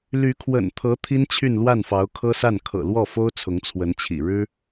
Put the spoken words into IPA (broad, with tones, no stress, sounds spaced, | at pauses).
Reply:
l y˧˥ kʰ w ə̰˨˩ n t̪ʰ ɤ˧˥ t̪ʰ i˥ n t͡ɕʰ y˥˧ n l w a˥˩ n f ɑ˧˥ ʊ̯ kʰ ɤ˥ s a˥˩ n kʰ ɤ̰˨˩ l w ɔ˥˩ f o˥ ʊ̯ t͡sʰ ʊ˧˥ ŋ t͡sʰ w ə˧˥ n t͡ɕʰ ḭ˨˩ ɻ ɻ̩˥